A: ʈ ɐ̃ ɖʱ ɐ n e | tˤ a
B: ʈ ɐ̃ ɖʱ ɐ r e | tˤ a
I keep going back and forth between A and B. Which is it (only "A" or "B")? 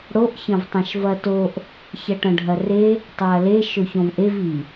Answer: B